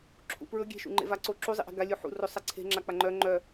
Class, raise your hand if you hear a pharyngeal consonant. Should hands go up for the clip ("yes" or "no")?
yes